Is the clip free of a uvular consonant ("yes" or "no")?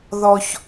yes